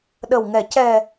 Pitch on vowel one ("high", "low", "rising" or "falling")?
low